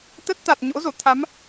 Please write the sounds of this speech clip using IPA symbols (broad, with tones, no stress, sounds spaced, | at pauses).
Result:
t̪ ə˦˥ t̚ t̪ a˨˩ t̚ ɲ o̰˧˥ z o˧˩ t̪ʰ a˨˦ m